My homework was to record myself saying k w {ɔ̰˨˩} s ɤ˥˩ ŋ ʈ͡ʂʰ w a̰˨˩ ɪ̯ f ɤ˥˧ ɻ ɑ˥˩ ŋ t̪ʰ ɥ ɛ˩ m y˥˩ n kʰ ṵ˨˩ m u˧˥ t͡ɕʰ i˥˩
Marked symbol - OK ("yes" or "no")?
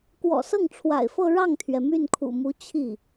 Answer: yes